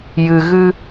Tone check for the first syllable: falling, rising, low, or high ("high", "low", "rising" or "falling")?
low